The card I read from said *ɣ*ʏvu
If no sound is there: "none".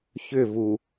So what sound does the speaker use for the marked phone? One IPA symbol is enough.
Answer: ç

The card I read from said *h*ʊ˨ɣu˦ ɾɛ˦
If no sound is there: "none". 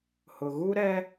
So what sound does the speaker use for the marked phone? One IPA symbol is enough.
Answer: h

